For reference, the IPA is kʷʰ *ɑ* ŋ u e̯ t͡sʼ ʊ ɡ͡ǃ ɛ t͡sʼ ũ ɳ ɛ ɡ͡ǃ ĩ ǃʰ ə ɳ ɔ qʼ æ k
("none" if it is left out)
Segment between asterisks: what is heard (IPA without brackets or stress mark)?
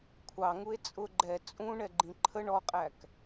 ɑ